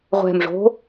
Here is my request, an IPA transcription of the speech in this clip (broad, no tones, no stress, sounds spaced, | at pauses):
ʁʷ ɛ̤ m ʐ o̤